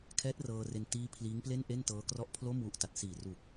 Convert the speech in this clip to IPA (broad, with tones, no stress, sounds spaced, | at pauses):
kʰ ɛː˦˥ t̚ r ɤː˧ r e˧ n t iː˦˥ pʰ l iː˦˥ ŋ p l e˥˩ n ʔ e˥˩ n t ɤː˦˥ k r ɔ˥˩ ʔ pʰ l o˥˩ m w u˦˥ ʔ t a˨˩ t̚ s iː˨˩ r u˨˩ k̚